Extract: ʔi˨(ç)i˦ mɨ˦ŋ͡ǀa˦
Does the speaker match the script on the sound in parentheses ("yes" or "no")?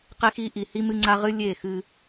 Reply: no